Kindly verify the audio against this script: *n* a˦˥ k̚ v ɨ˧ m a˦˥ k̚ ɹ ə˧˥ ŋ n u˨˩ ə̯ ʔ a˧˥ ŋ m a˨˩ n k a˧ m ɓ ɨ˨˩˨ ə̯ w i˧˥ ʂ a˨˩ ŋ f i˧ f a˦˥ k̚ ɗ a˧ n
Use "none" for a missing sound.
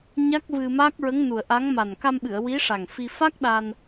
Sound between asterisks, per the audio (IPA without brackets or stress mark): ɲ